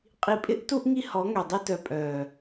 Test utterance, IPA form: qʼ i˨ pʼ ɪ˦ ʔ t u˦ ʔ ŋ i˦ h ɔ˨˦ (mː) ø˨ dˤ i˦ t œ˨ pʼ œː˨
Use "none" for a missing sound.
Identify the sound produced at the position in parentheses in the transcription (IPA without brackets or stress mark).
ŋ